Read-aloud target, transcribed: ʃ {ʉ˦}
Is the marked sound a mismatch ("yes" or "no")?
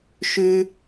no